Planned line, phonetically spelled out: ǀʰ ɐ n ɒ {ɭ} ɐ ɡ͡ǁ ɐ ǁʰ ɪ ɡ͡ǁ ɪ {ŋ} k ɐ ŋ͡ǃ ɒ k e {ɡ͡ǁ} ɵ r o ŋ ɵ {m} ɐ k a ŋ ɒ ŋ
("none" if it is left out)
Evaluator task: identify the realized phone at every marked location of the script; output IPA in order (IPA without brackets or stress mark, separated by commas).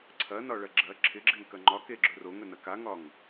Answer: ɭ, ŋ, ɡ͡ǁ, n